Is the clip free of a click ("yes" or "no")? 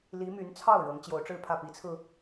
yes